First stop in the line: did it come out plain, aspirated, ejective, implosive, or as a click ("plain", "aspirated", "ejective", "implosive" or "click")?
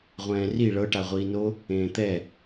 plain